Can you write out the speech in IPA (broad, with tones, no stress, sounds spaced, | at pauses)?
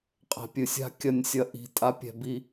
qʼ ɛ̤˨ pʲ ɨ˨ sʲ a̤˦ kʲ ɐ˦˨ nʲ sʲ ɐ˦ ʔ i̤˨ tʼ a˦ pʲ ɛ̤˨ b i˦